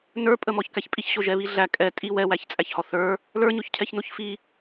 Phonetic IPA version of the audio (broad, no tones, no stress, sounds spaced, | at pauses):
n ə˞ pʼ ə m ɔ ç k æ ç pʼ i ç ɕ o ʒ ɛ β i ɮ æ kʼ ɛ tʼ i w ɛ w æ ç t͡sʼ æ ç h ɔ θ ə˞ | l ə˞ ɲ o ç cʰ ɛ ç n o ç f i